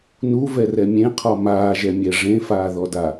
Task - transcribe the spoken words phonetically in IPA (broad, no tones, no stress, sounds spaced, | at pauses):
n u v ɛ r ɛ mʲ ẽ qʰ ɔ m aː ʒ ɛ mʲ ɛ ʐ ẽ f aː ð ɔ d a